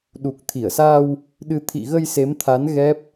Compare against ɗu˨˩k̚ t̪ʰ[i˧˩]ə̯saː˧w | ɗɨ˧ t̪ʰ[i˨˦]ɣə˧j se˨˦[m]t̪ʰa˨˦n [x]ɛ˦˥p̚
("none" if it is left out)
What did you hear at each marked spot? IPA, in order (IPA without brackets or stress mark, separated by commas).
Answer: i˧˩, ḭ˧˨, m, ɣ